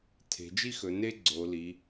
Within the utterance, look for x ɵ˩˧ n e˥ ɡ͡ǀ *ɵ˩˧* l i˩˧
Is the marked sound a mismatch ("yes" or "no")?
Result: yes